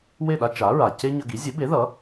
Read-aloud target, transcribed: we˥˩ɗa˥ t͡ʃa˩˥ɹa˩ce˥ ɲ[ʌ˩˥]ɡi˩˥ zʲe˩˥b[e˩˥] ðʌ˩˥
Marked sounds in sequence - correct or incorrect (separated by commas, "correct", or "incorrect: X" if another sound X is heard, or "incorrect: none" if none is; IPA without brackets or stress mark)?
incorrect: ʌ˧, correct